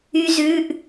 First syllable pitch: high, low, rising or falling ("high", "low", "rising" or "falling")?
high